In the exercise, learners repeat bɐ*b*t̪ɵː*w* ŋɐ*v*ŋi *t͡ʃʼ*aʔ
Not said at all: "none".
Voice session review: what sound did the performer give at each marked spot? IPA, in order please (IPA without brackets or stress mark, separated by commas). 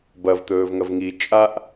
v, v, v, t͡ʃʼ